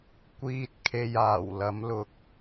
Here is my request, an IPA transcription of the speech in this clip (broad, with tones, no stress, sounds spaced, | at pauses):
kʷ iː˥ t̚ kʰ e˧ j aː˨˩ w l ɐ˨˥ m l ʊ˨ k̚